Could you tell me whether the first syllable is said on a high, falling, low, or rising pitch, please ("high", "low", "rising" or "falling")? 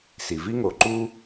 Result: low